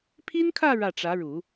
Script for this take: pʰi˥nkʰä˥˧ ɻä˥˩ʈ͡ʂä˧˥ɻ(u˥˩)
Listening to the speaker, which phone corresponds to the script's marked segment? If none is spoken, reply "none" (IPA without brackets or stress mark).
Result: u˨˩˦